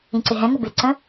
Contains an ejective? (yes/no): no